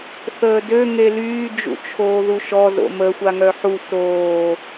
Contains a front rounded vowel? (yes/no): yes